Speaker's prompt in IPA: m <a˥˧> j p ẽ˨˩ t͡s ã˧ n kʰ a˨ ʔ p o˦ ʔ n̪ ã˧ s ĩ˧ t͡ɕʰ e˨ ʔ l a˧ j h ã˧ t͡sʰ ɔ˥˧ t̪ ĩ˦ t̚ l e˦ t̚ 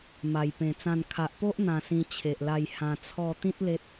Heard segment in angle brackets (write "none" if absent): a˨˩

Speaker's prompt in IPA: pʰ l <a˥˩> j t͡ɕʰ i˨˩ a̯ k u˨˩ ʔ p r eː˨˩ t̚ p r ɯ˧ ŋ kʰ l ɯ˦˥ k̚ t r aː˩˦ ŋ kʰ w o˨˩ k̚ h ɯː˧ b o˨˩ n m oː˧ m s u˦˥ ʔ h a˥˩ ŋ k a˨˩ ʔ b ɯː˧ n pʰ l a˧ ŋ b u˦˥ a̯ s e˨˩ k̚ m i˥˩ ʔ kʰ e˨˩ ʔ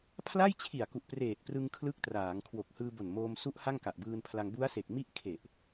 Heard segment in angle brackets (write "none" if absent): a˥˩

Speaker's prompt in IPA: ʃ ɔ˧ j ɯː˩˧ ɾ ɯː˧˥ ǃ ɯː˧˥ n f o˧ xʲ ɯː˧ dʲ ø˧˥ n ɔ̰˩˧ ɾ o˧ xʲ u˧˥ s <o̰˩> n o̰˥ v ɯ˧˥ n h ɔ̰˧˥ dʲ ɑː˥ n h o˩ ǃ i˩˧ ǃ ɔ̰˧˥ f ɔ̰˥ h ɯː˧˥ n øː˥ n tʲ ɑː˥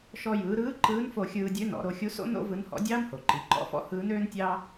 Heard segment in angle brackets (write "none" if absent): o̰˥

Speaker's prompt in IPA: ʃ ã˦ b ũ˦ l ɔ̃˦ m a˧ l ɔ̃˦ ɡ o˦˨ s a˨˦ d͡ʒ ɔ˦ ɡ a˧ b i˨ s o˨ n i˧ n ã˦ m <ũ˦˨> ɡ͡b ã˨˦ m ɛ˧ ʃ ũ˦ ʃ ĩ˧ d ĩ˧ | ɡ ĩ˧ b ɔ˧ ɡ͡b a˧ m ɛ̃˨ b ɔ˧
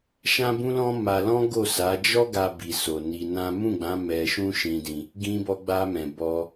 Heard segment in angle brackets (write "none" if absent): ũ˦˨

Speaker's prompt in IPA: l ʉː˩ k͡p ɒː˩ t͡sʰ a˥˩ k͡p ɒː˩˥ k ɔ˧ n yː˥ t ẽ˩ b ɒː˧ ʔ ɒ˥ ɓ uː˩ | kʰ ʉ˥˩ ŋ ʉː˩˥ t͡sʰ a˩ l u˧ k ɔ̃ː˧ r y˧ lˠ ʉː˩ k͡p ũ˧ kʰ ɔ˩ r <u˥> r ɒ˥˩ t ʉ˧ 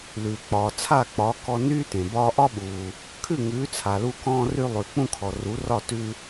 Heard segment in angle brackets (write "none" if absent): u˩˥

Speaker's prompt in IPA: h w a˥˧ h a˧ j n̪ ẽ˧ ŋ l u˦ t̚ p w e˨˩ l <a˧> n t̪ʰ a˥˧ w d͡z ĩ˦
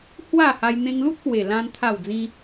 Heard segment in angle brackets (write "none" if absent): ã˧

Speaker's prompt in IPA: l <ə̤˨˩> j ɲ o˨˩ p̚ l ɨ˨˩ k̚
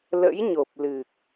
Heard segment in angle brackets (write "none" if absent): ə̰˧˥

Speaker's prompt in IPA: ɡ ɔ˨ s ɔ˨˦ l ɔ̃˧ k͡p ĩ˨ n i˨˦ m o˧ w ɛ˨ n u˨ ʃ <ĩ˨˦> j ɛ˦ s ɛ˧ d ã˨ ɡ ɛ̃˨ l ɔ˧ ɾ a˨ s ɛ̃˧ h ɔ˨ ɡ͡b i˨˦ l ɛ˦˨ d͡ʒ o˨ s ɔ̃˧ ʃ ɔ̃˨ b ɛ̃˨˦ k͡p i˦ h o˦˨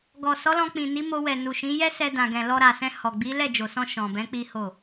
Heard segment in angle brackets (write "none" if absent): ĩ˨˦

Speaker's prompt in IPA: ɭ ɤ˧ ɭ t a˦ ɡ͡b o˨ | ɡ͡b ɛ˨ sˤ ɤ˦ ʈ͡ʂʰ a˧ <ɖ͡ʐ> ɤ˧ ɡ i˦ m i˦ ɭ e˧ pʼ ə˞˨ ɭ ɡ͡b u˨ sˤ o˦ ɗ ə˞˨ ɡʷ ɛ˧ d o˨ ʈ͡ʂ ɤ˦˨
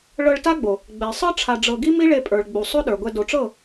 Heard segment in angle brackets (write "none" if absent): ɖ͡ʐ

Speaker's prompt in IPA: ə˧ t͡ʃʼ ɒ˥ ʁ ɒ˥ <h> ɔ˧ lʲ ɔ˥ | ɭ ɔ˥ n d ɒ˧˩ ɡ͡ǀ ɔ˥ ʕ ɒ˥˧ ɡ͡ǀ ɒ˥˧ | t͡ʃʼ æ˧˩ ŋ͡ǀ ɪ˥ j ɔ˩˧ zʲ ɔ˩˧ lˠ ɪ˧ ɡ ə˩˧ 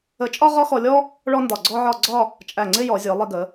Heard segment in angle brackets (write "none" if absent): x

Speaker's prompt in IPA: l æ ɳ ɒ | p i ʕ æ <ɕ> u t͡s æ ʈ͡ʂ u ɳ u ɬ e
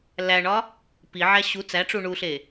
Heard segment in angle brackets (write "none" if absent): ɕ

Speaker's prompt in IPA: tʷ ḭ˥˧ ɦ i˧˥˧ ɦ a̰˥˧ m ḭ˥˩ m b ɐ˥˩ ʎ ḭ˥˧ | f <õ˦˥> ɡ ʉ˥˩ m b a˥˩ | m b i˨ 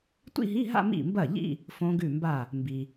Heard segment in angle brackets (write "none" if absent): õ˦˥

